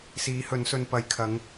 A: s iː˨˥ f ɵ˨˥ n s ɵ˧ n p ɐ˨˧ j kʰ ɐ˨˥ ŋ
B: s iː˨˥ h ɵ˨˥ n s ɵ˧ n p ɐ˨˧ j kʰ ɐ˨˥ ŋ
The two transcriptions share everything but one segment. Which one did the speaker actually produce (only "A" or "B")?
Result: B